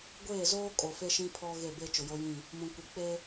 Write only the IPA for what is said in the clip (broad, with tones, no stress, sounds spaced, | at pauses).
ɡʷ eː˦˨ z oː˦ kʼ o˨ f e˦ ʃ ĩ˦ pʰ ɔ˦ ɣ e˦˨ b e˦ t͡ʃ ʊ˨ j o˦ j ĩ˦˨ | m ũ˨ kʷ ɪ˨ k͡p e˦